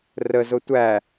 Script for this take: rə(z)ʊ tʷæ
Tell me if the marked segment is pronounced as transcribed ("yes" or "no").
yes